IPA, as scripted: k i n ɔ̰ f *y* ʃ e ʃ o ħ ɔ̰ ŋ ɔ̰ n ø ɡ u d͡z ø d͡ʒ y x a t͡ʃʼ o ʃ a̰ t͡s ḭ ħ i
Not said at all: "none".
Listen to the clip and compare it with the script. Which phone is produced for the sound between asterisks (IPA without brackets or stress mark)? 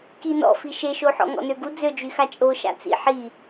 i